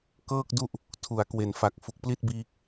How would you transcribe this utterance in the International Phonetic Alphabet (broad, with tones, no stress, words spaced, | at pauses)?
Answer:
kɤː˥˩k̚du˥˩ʔ | tʰu˩˦a̯kwe˩˦nfa˨˩k̚ fu˨˩k̚pli˥˩t̚biː˦˥k̚